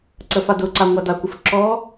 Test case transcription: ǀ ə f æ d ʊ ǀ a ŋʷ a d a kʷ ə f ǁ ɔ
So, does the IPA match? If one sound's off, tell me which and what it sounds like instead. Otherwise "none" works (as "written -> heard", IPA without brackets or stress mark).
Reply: æ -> a